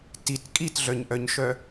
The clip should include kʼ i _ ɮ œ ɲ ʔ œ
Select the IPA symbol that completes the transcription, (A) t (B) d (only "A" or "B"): A